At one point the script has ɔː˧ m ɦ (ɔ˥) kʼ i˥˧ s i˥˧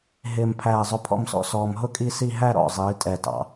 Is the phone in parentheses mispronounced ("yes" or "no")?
yes